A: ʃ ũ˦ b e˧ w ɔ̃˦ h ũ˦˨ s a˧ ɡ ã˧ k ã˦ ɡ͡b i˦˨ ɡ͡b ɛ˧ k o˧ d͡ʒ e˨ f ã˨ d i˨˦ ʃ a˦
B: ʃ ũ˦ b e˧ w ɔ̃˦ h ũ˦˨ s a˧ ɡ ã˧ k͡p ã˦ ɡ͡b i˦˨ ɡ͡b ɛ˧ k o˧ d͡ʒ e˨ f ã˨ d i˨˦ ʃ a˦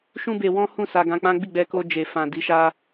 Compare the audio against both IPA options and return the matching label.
B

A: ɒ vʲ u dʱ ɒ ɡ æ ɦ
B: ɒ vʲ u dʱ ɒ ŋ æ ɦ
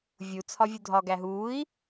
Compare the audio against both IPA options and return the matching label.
A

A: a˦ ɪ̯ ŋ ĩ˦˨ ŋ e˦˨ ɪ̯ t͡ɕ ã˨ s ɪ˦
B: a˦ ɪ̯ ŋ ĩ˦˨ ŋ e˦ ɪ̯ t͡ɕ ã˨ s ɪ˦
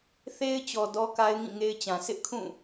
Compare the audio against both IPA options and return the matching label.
B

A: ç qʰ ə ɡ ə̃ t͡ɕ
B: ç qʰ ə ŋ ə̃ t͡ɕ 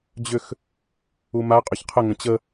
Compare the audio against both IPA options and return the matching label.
B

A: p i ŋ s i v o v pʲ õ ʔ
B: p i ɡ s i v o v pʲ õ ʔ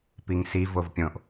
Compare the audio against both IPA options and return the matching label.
A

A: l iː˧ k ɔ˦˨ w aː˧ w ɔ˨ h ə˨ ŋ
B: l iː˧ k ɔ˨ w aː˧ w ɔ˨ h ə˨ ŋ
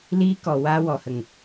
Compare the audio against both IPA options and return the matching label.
B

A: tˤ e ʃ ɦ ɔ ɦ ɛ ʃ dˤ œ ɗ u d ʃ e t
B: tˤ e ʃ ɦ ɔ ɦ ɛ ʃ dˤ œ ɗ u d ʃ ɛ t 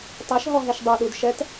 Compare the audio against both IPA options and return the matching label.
B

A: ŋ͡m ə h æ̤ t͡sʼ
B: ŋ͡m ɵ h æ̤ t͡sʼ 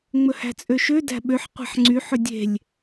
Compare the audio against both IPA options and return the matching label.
B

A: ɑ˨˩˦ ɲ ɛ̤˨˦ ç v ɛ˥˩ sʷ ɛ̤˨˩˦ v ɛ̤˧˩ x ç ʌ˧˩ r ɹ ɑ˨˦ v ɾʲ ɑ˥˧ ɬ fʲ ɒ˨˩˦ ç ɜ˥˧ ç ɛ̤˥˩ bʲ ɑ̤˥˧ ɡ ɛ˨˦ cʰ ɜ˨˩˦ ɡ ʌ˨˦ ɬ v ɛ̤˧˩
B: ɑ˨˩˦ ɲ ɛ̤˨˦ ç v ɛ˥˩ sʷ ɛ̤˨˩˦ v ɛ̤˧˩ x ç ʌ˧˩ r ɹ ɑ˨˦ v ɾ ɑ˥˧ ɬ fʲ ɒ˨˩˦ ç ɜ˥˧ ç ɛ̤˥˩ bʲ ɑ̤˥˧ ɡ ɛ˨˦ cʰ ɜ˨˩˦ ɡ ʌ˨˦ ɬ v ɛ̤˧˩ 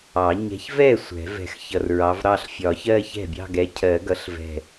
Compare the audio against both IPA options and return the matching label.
B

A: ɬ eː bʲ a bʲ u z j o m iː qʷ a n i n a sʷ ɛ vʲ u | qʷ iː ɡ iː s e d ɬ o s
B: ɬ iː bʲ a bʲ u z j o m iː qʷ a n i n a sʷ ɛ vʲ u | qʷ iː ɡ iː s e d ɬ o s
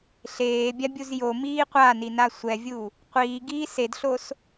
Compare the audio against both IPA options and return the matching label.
A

